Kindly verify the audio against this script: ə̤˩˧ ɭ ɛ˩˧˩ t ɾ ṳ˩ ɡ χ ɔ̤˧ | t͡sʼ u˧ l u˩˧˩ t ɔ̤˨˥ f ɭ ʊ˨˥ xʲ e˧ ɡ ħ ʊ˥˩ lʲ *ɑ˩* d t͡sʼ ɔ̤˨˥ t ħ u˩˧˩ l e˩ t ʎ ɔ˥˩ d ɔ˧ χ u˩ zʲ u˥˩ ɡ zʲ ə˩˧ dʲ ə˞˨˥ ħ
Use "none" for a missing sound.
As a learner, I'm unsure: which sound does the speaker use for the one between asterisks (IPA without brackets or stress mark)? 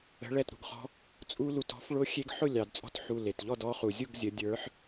ɑ˩